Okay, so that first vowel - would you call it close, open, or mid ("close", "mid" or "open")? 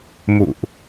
close